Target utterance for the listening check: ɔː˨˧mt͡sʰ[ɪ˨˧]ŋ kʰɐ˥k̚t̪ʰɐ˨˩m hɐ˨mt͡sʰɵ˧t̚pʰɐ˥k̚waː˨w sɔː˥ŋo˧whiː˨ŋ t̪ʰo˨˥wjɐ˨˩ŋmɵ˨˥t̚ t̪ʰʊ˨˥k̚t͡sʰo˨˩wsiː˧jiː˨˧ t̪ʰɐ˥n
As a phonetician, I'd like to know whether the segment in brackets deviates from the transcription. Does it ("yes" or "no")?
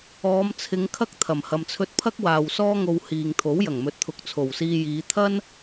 no